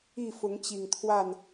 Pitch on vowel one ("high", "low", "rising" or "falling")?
falling